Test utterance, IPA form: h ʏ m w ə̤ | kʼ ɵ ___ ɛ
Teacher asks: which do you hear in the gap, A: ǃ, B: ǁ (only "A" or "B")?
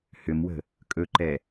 A